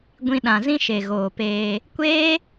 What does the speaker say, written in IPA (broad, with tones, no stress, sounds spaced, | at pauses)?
ɡʷ ĩ˧ ɗ ã˨ z ĩ˦ ʃ e˨ ɣ oː˨ p eː˧ | kʷ eː˦